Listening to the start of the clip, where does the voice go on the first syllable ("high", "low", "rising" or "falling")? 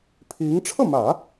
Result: rising